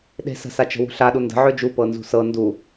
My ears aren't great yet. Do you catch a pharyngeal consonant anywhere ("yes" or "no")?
yes